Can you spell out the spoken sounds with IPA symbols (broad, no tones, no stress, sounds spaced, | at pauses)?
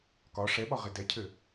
k ɒ ʂ ɛ ɓ ɒ ʁ ɪ d ɛ cʰ ɘ